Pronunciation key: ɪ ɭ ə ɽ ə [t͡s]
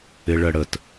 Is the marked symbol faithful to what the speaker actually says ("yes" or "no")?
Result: no